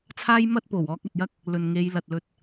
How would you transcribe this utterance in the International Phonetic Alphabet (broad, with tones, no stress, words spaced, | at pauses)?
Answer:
t͡sʰaː˥jmɐ˥t̚ po˨˩wɔː˧k̚ɐ˨t̚jɐ˥k̚ | lɵ˨n ŋe˨˧jlɐ˨t̚lɵ˧t̚